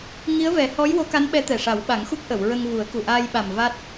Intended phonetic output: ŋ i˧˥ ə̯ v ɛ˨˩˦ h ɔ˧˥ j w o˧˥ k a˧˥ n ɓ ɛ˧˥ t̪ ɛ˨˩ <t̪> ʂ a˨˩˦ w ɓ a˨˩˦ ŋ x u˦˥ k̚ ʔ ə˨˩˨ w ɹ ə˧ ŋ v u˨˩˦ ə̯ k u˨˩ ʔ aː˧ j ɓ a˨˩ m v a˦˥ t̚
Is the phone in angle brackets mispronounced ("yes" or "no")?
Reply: yes